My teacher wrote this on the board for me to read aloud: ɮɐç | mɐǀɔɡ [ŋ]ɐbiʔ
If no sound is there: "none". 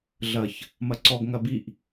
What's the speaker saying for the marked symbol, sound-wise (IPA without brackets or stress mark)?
ŋ